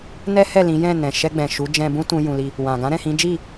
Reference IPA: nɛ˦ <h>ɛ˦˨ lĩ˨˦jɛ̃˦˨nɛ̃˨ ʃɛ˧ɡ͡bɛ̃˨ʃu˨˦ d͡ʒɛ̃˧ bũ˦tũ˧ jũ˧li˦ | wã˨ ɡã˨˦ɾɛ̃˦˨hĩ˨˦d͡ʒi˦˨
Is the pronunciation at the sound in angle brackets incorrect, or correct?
correct